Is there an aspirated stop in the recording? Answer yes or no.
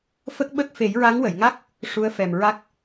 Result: no